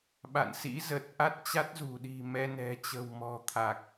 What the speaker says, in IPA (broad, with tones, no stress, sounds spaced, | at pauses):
ɓ a̰˧˨ n s ḭ˧˥ z ə˨˩ t̚ ʔ a˦˥ t̚ t͡ɕ a˦˥ t̚ z ṳ˨˩ ɗ i̤˨˩ m ɛ˧ n ɛ̤˨˩ t͡ɕ ə̤˨˩ w m ɔ̤˨˩ t̪ʰ a˨˩ k̚